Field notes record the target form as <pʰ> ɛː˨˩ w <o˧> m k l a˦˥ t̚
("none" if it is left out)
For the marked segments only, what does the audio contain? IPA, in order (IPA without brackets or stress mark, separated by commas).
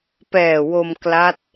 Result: p, o˧